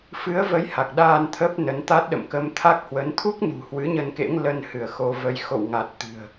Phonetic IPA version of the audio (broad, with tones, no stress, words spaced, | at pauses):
fɨ˨˦ə̯və˨˦j ha˨˩k̚ɗaː˧n t̪ʰə˦˥p̚nə˨˦nt̪a˦˥t̚ ɗə̰˧˨mkə˧mt̪ʰa˦˥k̚hwə˨˦n t̪ʰu˦˥k̚nṳ˨˩ hwɨ˨˦ɲə˧nkḛ˧˥ŋ lə˧nhɨ˧˩ə̯ xo˧və˧j xo̰˧˨wŋa˨˩t̚ t̪ɨ̤˨˩ə̯